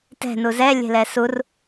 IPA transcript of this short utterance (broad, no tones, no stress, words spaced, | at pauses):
tɛ̤ nuzɛ lʲe̤lɛsur